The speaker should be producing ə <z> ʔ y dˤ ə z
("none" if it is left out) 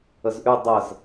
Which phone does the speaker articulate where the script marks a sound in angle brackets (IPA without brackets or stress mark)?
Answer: z